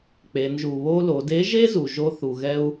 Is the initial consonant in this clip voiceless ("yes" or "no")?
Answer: yes